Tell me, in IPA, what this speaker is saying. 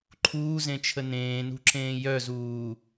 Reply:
ǃʰuːzẽt͡ʃʰə nẽːnṳǁẽː jœzuː

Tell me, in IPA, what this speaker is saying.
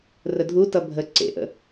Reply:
rədʱutʌ bʱə ǀḛʔə̰

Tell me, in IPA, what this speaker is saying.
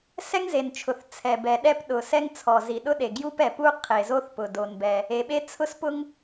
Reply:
sɛ˥ŋze˩nt͡ʃʰʊ˩θ t͡sʰɛ˩bɛ˩ ɗɛ˥pɗʊ˩sɛ˥ŋt͡sʰɔ˩ zi˩ ɗʊ˥ ɗe˩ ɡju˥p ɛ˩pu˥ qʰe˩zo˥θpʊ˩ do˩nbɛ˩ | e˩ɓe˥ t͡sʰʊ˥spʊ˥ŋ

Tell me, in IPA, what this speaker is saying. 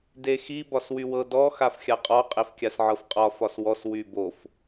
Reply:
dexi bɒswywɤ dɔ xafxʲaqʼɒ qʼefkʲasʕɤfqʼɒ fɒswɔs wybof

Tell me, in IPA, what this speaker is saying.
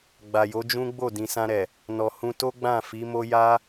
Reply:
ɡ͡ba˨jo˨˦d͡ʒũ˦ ɡ͡bo˦˨dĩ˨sã˧ ɾɛ˨ | nɔ˨hũ˧to˦ɡ͡bã˦˨ fi˨˦mo˦ ja˦

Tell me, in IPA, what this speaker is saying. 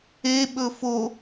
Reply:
eɓɵ fo

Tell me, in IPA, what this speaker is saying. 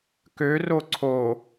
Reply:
køro ǀʰo

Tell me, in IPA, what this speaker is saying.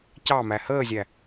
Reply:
cɑmæ həːzʲæ

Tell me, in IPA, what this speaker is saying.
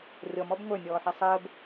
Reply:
rʲɔmɔb ŋʷə˞nʲɔːħɛ sˤəːb

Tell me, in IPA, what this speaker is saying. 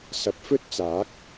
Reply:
sɐ˨˥p̚fɵ˥t̚t͡saː˨˥k̚

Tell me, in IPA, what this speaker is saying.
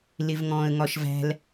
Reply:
lɪvŋɔ̃ːə̯ŋɒʃvæ̤l

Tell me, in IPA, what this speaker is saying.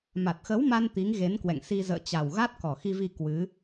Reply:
ma˨˩t̚xə˨˦wma˧n t̪i˨˦ŋɣe˨˦nkwɛ̰˧˨ŋ si˧zə̰ː˧˨t͡ɕa˨˩w ɣa˦˥t̚kɔ˨˩xi˧vi˧ kwɨ˨˦

